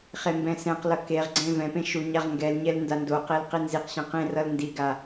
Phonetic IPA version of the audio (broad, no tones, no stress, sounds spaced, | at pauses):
χ e m b ɛ̃ s ɛ̃ q l ʌ k e ʁ ɡ͡ǀ ẽ v ɛ̃ p ẽ ʃ u ɲ a ʁ ŋ ɡ ɛ l ɲ ɛ l n d a n d o q e l q i n z i q ɕ ɛ̃ q ẽ r ʌ l n d i ɡ a